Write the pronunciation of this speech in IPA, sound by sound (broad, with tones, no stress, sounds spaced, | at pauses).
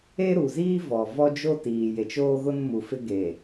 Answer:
e˦ ɾ u˨ z iː˦ v ɔ˨ v ɔ˦ d͡ʒ o˦ t iː˨ j e˨ t͡ʃ oː˦ ɣ ʊ˦ n m u˨ f ɪ˦ ɡ e˨